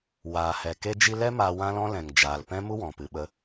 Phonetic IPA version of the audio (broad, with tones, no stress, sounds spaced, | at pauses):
w aː˨ h ɛ˨ k e˧ d͡ʒ i˧ l ɛ˦ m a˧ w ã˦ l ɔ̃˦ l ɛ̃˨ ŋ d͡ʒ aː˨ l p ɛ̃˦ m u˦ w ɔ̃˨ p ɨ˨ ɓ ə˧